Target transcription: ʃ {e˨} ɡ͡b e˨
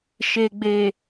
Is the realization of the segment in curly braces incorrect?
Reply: no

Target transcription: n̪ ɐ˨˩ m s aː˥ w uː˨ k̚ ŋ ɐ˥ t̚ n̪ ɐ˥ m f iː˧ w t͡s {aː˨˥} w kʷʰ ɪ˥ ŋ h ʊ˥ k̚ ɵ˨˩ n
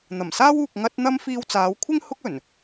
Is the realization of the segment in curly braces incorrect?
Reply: yes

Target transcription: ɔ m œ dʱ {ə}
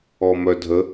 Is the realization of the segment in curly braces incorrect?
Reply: no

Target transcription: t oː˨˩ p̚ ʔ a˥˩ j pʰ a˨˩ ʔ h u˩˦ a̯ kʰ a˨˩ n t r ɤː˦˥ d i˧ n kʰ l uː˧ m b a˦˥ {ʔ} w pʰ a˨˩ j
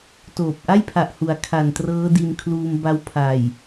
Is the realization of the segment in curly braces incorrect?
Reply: yes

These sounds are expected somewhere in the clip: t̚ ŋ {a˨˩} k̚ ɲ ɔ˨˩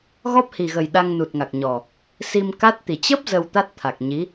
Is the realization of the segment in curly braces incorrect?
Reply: no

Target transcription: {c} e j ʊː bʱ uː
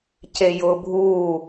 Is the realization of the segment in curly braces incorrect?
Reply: no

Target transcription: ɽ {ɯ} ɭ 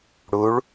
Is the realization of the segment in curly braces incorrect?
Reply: yes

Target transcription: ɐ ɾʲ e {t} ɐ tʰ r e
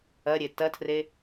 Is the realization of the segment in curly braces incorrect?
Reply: no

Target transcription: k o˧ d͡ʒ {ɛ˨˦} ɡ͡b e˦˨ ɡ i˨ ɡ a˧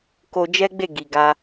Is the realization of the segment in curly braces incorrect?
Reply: yes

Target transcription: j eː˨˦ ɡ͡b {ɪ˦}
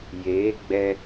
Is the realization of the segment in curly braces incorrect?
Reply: yes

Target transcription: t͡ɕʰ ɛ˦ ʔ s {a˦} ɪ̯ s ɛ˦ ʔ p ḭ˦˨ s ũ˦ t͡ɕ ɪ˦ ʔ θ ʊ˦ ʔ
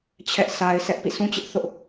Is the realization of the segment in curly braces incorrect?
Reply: no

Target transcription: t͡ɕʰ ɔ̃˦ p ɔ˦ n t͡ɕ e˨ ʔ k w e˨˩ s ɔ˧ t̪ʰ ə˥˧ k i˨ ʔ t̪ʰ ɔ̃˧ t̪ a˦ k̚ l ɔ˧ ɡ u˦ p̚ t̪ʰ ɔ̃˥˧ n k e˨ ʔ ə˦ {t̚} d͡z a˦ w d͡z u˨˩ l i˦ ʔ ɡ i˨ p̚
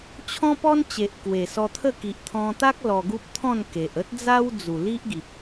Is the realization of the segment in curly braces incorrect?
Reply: no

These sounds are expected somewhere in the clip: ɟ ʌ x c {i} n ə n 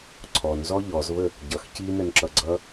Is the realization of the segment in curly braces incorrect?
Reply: no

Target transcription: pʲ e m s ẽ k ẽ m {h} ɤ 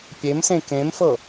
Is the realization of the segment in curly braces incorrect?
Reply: yes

